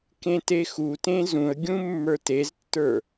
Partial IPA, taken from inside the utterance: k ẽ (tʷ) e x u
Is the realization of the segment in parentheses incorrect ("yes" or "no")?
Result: yes